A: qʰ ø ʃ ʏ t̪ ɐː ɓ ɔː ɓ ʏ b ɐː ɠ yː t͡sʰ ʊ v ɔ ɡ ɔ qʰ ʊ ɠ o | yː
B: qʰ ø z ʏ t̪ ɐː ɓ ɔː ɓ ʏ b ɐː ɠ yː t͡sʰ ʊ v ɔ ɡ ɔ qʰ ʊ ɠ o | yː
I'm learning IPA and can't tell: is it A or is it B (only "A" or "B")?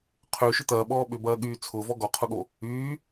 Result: A